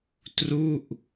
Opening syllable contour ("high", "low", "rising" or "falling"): falling